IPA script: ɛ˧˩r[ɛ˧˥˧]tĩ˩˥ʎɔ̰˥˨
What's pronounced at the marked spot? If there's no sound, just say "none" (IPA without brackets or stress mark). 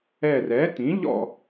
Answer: ɛ˩˥